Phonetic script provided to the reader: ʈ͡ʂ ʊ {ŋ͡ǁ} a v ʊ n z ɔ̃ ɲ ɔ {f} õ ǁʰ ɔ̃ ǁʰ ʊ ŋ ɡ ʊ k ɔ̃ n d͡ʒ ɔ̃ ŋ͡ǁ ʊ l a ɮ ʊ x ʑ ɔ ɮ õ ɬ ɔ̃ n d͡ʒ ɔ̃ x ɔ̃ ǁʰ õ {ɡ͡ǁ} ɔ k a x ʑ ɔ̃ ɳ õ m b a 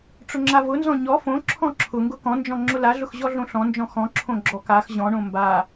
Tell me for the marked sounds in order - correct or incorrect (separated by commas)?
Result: correct, correct, correct